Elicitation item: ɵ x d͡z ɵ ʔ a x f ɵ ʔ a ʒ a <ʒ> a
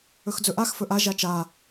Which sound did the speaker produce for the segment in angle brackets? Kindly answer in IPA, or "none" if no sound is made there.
t͡ʃ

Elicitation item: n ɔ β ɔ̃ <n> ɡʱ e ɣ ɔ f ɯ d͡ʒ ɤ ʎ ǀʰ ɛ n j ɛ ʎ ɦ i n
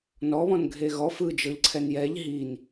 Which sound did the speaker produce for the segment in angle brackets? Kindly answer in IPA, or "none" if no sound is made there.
n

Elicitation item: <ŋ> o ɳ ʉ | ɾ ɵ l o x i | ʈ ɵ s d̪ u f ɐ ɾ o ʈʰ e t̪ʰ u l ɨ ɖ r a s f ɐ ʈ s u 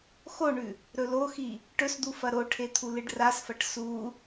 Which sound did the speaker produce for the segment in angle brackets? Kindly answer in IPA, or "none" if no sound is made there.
x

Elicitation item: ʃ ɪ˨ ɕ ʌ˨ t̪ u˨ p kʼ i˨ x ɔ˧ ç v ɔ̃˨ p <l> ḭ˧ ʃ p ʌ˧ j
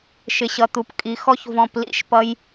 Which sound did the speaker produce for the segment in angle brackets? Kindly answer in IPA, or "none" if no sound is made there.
l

